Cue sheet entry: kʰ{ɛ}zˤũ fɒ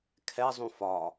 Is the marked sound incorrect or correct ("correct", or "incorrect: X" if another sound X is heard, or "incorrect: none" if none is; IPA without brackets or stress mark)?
correct